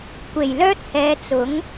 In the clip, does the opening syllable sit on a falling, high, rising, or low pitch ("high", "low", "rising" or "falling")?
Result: low